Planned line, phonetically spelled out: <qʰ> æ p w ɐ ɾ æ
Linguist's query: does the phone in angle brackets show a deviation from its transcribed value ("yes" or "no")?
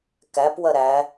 yes